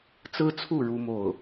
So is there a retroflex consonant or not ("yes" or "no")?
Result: yes